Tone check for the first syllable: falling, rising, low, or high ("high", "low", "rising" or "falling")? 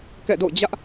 falling